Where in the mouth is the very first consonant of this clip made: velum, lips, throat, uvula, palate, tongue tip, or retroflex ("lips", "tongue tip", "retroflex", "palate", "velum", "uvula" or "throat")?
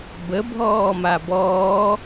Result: lips